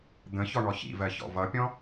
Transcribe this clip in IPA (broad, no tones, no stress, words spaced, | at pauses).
d̪ə̃ çɔɳɔçḭvɜ çɔ̰vʌpʲɔ̃